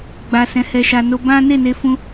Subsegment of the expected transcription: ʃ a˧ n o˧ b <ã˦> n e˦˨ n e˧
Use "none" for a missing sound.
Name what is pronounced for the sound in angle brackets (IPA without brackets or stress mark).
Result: ã˦